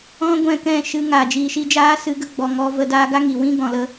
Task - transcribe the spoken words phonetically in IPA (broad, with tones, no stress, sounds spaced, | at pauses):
ɔ̃˦ ɡʷ ɛ̃˦˨ k ɛ̃˦˨ ʃ ɨ˧ ŋ aː˨ d͡ʒ iː˨ ʃ i˧ d͡ʒ aː˦ s ɨ˧ ɡ ə˧ ɡ͡b ɔ˨ ŋ ɔ˧ v ə˧ d aː˧ ɡ a˦ ŋ i˨ w ĩ˦ ɡ ɔ̃˧ l ə˦